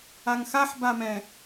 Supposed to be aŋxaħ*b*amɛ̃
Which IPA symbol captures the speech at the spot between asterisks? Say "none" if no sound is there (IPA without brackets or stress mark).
b